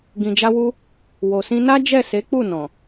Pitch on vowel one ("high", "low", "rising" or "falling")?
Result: low